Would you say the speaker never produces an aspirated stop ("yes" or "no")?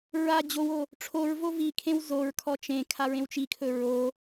no